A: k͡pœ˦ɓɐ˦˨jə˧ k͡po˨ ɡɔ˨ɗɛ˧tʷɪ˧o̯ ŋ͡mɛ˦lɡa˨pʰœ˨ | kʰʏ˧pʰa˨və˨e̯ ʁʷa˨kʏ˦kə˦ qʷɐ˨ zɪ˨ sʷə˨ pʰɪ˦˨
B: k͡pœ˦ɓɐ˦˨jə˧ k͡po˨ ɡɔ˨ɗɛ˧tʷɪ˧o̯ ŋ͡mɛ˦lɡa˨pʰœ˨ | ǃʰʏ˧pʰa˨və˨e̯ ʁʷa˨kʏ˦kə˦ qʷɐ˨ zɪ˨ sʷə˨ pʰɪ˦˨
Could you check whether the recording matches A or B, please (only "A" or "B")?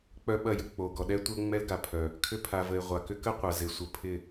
A